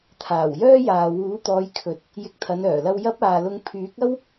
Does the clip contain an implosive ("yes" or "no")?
no